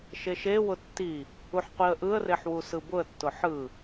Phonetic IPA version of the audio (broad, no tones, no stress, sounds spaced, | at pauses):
ʃ e ʃ e w ʊ tː i | u ħ qʷ i ə̯ ʔ ɯ ə̯ r e ħ w u s ɯ b ʊ ə̯ tː ʊ ħ ɯ